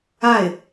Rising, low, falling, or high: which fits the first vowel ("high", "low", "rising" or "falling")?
falling